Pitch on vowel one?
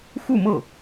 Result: falling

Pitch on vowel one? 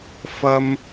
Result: high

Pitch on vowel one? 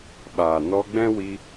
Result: low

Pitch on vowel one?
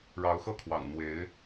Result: rising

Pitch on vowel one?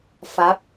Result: rising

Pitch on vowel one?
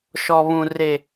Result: high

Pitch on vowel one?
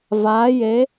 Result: rising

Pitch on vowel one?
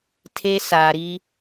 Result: high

